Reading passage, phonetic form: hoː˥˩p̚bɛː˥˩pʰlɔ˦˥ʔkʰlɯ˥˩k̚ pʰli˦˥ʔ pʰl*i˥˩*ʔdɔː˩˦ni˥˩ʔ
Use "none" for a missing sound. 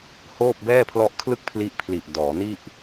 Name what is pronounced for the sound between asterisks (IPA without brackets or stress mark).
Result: i˨˩